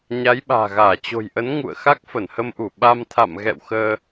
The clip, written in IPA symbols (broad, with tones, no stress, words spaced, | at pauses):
ɲa˨˦jɓa̤ː˨˩ɣaː˧˩ t͡ɕo̤˨˩jʔə˨˦n ŋṵ˧˨ə̯ xa˦˥k̚fə˧˩nhə˧mʔu˧˩ ɓa˧mt̪ʰa̰˧˨mɣɛ̰˧˨wxəː˧